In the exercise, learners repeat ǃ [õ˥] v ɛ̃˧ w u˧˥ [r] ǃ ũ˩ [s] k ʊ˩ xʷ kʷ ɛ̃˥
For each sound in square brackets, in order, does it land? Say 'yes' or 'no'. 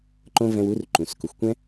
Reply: yes, yes, yes

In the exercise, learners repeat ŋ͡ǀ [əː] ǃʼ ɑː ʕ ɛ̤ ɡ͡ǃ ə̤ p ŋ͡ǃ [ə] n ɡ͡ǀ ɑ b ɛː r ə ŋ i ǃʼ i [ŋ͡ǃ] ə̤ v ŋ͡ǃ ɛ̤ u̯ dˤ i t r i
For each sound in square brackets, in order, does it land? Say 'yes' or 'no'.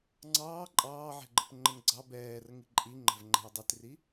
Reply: no, yes, yes

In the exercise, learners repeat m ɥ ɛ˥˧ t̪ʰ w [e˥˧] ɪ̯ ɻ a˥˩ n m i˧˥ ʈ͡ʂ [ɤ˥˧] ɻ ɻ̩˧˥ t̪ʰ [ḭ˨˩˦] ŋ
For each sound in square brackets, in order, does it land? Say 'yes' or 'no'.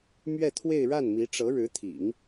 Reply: yes, no, yes

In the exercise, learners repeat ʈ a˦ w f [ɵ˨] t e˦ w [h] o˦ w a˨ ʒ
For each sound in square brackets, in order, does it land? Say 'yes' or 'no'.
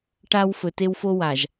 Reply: yes, no

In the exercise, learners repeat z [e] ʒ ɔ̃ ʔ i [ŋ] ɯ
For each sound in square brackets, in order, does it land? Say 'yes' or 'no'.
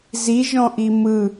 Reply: no, no

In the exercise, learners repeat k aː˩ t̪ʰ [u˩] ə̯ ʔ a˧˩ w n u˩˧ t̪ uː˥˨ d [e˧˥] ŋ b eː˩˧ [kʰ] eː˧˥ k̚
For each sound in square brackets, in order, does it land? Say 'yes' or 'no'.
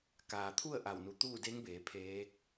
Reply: no, yes, no

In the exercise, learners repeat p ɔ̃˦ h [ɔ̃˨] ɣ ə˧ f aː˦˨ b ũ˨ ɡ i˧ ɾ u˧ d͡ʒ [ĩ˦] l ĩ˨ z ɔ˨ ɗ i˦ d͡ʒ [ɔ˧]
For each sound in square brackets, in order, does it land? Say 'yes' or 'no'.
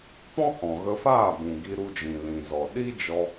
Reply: yes, no, yes

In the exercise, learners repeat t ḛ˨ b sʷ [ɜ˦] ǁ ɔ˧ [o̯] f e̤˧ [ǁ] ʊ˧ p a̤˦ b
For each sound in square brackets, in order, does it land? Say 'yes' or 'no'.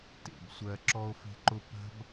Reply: no, yes, no

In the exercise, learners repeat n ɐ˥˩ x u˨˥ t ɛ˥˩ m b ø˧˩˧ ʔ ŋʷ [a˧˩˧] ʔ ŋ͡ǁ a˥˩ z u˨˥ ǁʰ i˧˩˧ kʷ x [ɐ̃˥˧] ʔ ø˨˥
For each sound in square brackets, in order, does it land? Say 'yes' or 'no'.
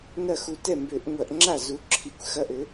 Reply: no, no

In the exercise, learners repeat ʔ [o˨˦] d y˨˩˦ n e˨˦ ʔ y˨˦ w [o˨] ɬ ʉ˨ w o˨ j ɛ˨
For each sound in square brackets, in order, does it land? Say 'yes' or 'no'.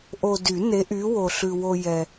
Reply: no, yes

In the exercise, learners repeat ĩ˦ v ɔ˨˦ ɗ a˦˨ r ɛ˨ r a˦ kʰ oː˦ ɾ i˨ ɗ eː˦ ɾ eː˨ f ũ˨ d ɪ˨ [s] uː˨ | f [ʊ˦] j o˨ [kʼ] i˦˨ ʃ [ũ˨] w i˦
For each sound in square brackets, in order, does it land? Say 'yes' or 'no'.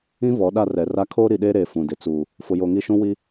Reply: no, no, no, no

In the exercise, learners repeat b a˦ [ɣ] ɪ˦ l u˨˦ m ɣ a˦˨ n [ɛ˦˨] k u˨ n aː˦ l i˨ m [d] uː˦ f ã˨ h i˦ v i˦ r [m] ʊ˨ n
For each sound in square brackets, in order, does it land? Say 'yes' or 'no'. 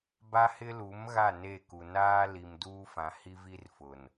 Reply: no, no, yes, no

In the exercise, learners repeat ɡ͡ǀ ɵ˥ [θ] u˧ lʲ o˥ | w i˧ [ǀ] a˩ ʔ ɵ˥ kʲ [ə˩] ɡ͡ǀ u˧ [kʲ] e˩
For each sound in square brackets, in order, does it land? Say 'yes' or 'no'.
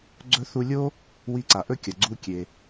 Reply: yes, yes, no, yes

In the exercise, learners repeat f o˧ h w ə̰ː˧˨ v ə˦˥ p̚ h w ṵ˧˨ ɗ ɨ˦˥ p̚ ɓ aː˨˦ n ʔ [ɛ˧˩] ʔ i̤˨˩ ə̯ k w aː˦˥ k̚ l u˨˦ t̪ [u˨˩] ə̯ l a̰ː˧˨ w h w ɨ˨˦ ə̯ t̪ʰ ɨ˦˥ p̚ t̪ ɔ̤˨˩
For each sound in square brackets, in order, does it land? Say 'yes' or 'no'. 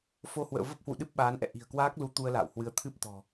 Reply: no, no

